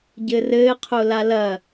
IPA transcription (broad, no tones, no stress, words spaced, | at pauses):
ɟɘrɘːqʰo lalɐ